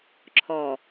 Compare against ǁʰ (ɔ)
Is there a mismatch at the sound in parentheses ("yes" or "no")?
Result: no